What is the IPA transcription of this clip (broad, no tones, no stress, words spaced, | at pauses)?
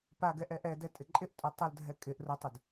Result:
paɡɛ ʔɛʔɛdɛ tʼɪǃʼɪʔtʼu tˤʊldʱɛ kʼɪʔ rʊtˤʊd